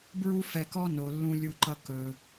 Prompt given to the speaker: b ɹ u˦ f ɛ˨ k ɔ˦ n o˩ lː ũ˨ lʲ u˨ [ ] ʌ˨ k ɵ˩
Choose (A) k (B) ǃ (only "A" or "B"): B